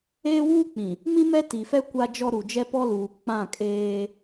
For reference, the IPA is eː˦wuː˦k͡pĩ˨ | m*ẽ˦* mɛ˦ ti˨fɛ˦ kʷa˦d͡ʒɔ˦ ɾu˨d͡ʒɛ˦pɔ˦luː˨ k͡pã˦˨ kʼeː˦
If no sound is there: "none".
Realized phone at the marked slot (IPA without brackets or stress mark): ĩ˦